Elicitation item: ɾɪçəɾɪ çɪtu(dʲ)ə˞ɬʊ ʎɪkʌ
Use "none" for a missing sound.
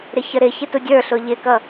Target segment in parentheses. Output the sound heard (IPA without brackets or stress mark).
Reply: dʲ